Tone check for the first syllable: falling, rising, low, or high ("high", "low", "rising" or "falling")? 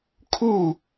falling